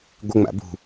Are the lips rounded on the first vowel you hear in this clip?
no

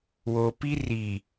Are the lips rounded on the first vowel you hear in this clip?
yes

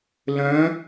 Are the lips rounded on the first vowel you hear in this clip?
yes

